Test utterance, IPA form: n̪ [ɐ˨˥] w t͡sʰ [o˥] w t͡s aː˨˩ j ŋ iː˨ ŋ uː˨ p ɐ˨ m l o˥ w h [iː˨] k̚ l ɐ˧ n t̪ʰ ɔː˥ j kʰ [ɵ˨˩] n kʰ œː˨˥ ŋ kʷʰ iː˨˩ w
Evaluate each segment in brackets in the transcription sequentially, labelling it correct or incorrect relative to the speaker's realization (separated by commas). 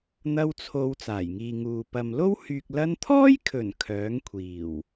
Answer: incorrect, incorrect, incorrect, correct